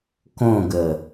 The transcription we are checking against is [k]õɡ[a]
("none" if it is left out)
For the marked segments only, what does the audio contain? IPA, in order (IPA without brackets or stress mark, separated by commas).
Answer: k, ə